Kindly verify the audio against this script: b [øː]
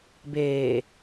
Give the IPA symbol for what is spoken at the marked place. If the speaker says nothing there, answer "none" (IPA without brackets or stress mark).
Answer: eː